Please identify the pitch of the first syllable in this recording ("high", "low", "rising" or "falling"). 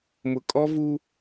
low